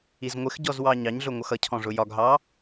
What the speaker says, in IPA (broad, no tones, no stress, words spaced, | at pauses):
izŋʷɪxɟɔz wɑɲɑɲɮʊ ŋʷʌxʌcʰɔ̃ ʐʊjɒɡɦɑ